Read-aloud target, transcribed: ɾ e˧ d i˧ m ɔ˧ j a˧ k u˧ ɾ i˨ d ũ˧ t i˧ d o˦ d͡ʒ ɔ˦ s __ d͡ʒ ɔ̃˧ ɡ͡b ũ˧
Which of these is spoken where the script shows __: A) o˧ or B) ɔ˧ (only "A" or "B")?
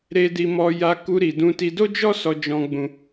B